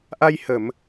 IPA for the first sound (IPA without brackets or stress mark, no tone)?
ʔ